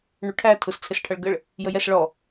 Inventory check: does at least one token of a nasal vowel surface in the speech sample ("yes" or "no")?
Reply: no